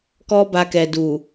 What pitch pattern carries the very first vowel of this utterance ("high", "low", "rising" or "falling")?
high